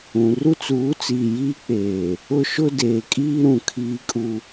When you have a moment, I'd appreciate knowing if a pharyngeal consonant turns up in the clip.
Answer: no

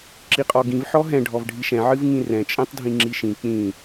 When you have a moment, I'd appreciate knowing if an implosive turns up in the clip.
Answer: no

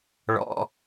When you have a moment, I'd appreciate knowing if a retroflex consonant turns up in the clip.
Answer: yes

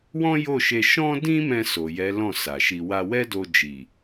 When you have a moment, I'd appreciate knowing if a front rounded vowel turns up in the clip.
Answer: no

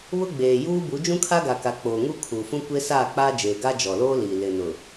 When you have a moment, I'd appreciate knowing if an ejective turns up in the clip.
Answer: no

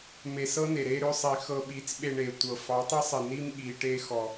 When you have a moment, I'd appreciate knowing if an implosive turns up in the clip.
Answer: yes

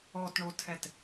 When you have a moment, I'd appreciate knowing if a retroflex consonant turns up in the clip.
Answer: yes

